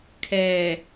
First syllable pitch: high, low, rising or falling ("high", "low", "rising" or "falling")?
low